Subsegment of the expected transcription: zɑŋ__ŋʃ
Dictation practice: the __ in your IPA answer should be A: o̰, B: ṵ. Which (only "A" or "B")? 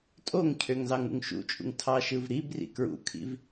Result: B